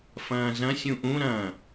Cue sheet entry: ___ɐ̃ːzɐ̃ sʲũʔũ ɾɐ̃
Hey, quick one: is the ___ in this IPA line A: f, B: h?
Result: A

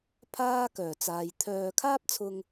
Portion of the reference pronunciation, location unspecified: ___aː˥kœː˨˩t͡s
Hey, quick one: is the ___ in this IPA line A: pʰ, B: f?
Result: A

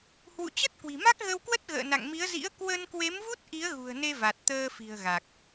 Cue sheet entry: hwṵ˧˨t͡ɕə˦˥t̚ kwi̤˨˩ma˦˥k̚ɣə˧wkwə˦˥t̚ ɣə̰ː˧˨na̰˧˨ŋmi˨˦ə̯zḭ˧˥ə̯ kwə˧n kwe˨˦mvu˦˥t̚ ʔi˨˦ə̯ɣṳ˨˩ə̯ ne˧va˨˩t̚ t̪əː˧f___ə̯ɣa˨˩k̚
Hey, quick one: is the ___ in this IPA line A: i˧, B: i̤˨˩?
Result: B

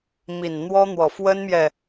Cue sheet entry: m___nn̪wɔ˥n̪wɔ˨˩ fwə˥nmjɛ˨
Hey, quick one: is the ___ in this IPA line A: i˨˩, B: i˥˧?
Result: A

